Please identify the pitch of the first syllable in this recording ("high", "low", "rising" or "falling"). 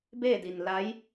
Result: falling